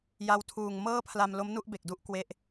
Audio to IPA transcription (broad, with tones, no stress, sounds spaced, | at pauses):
j a˧ w tʰ uː˨˩ ŋ m ɤː˥˩ pʰ l a˧ m l o˦˥ m n u˥˩ ʔ b e˨˩ k̚ d u˥˩ ʔ k w e˦˥ ʔ